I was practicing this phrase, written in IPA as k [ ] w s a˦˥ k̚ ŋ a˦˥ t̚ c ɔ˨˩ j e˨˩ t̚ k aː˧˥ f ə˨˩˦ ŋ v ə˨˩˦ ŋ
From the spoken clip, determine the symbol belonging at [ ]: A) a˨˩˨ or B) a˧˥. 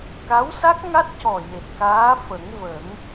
B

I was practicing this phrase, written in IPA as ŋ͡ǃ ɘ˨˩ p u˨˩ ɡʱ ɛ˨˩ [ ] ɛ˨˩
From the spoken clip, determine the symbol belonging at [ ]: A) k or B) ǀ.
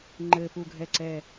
B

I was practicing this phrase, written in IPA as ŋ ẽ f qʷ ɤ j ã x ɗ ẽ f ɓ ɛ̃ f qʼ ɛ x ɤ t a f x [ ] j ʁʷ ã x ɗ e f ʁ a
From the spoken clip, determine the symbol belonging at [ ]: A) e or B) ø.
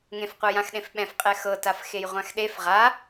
A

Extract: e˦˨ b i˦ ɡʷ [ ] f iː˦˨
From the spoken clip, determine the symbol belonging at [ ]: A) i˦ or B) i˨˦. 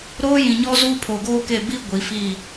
B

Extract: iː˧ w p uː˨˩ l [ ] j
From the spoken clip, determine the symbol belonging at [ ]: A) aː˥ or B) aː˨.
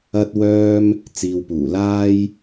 A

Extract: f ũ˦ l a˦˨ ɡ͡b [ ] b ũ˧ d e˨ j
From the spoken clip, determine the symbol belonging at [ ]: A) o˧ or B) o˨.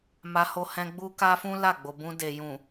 B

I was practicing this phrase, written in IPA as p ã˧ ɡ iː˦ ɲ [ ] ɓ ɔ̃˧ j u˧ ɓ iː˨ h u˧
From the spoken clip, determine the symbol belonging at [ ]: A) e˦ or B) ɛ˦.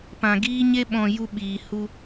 A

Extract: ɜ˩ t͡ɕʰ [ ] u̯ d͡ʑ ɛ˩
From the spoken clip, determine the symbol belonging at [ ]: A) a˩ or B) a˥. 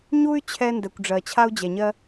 B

